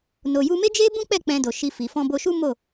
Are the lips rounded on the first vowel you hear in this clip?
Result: yes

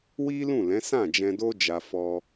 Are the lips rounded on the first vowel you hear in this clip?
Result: no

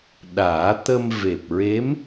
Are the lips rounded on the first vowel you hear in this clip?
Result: no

